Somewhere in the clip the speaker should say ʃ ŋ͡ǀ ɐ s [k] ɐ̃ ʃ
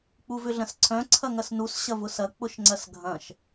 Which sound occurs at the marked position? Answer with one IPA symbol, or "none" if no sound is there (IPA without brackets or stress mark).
ɡʱ